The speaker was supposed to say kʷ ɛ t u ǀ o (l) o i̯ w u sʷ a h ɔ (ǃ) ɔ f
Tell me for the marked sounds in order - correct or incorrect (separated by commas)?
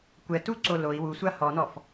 correct, incorrect